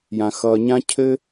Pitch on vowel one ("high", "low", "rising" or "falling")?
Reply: low